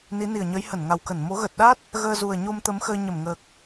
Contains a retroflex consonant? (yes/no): no